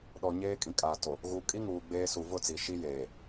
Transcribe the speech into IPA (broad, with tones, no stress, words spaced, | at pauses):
ɗɔ˨ ɲeː˦kʼĩ˨kʼaː˨ to˨ | ɣu˨kʼi˦ ŋuː˨ɡ͡beː˦ su˨vʊ˦˨t͡si˨ ʃi˦jeː˨